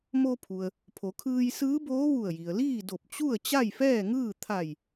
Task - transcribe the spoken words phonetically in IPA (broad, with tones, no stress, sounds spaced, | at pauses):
m o˧ pʰ u˩ ə̯ | pʰ o˩˧ kʰ ɯː˧ j s ɯː˧˥ b oː˧˥ ʋ u˧˩ ə̯ j i˩ ə̯ l iː˥˨ d o˧˩ p̚ t͡ɕ u˥˨ ə̯ t͡ɕ a˥˨ j f ɛː˥˨ ŋ ɯː˥˨ t̪ʰ a˧˩ j